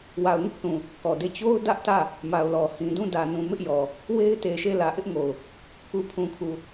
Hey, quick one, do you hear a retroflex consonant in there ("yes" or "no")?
no